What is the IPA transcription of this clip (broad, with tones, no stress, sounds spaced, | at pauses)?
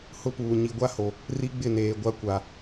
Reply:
h ʊ˦ p uː˨ ɲ i˨ ɡʷ a˦ h o˨ | r i˦ ɡ͡b ɪ˦˨ n eː˨ ɡʷ a˦ kʷ a˨